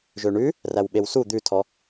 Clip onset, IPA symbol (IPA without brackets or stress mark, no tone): ʒ